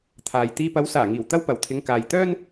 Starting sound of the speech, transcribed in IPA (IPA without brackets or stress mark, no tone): t̪ʰ